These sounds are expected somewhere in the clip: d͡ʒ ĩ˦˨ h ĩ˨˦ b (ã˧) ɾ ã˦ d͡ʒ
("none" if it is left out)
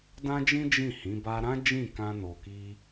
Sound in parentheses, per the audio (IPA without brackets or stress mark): a˧